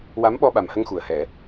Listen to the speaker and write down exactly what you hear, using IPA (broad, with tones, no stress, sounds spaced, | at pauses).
w a˧˥ m ɓ ɔ˧ ɓ a˨˩ m h ə˧ ŋ x u˨˩ ə̯ h ɛ˨˩˦